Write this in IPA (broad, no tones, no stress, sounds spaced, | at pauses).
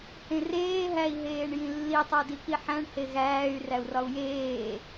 h ẽ r eː ɦ æ i̯ ɦ eː ɳ j ĩ lː i tˤ o d i k i ħ æ̃ ɳ h e ɣ æː y̯ r æ u̯ r ɒ u̯ j eː